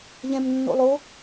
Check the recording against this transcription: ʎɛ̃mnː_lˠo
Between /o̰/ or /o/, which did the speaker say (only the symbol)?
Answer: o̰